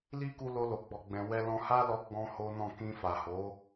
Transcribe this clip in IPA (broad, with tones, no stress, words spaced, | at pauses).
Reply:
li˦ku˧ lo˧lo˨ ɡ͡bɔ˨ɡ͡bɛ̃˨ wɛ˧lɔ̃˧ha˦lɔ˧ ɡ͡bɔ̃˦ho˦nɔ̃˦˨ kĩ˧fa˨ho˨˦